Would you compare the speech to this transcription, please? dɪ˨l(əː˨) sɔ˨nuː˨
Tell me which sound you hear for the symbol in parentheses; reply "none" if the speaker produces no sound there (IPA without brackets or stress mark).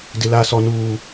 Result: aː˨